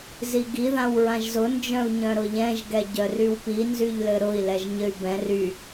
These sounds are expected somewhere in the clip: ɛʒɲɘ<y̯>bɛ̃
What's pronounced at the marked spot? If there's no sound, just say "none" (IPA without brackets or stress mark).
y̯